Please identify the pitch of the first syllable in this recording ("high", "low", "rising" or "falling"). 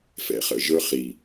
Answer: low